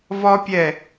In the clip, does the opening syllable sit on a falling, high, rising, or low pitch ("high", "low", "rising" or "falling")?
high